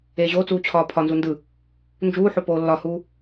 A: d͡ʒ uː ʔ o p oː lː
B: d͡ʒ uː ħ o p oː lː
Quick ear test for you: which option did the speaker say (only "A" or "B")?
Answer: B